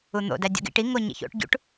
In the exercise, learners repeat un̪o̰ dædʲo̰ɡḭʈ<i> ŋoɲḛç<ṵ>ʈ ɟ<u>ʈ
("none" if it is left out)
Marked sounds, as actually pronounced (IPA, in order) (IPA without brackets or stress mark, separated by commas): i, o̰, ṵ